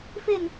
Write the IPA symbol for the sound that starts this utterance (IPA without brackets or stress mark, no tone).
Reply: f